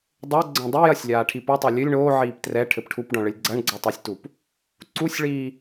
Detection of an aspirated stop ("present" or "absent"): present